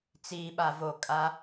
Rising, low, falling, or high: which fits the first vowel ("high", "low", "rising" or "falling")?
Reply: low